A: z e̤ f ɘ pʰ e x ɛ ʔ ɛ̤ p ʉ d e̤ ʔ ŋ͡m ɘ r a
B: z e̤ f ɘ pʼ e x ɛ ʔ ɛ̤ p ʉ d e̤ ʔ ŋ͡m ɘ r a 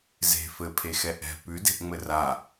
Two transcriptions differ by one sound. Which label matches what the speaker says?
A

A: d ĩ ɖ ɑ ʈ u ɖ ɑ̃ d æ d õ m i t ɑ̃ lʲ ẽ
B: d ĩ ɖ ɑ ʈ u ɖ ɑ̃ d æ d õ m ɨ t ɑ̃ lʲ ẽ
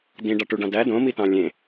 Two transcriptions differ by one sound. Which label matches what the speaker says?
A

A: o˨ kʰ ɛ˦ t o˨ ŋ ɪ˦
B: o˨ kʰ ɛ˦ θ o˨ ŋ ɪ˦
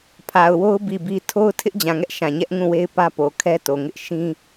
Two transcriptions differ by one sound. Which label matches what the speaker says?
A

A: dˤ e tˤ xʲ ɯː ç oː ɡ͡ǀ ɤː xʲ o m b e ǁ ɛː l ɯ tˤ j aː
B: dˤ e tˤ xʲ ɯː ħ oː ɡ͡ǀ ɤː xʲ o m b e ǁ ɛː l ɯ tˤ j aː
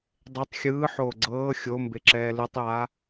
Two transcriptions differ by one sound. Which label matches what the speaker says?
B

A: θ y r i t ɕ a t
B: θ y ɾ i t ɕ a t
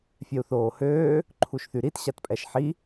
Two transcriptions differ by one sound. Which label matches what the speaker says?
B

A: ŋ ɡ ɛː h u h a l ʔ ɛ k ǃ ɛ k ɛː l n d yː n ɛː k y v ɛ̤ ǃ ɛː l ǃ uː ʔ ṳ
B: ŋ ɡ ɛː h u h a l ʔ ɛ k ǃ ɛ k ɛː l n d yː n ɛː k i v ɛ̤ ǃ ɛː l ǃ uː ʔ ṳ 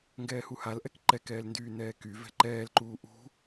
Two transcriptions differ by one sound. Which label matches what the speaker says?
A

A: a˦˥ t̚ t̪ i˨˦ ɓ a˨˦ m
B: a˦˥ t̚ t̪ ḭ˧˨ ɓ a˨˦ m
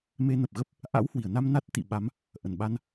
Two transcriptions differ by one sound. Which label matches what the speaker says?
B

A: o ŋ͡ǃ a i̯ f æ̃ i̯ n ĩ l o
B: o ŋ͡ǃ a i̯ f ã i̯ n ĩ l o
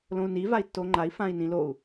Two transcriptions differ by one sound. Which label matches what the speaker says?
B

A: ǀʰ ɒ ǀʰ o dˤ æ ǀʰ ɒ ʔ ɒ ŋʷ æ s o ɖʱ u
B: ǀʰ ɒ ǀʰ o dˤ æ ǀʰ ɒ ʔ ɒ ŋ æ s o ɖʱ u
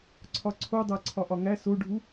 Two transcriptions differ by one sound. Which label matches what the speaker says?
B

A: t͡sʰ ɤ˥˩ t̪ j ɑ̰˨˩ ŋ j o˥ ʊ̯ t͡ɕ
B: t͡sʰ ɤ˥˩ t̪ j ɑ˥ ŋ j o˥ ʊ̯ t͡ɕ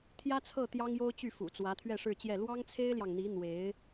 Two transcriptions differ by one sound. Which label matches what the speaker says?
B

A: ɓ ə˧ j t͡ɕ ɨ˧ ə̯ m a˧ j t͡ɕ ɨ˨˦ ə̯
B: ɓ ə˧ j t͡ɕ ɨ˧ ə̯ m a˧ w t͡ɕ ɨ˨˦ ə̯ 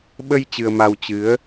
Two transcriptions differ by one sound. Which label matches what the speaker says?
B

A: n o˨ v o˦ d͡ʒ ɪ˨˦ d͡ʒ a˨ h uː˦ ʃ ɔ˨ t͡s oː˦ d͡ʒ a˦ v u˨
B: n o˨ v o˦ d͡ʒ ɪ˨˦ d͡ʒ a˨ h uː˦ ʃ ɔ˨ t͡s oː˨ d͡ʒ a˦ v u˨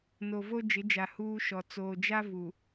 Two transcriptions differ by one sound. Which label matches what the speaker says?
B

